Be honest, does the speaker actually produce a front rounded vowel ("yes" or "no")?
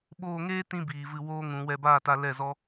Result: no